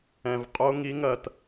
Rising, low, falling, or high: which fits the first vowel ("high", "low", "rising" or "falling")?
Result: low